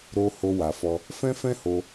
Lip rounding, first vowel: rounded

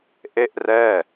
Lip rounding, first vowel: unrounded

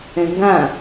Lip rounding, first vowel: unrounded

